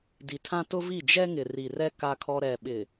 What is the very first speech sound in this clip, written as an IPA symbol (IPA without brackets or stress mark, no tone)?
d